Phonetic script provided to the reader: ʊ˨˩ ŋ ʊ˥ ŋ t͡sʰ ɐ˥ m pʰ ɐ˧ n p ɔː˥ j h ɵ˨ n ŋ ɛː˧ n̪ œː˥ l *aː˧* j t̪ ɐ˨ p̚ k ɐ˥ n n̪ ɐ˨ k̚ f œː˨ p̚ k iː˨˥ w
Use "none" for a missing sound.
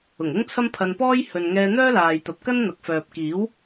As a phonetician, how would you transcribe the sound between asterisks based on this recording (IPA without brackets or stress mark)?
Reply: aː˨